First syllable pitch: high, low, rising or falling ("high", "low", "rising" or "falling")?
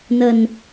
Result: low